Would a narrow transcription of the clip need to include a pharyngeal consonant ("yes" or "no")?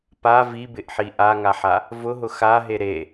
yes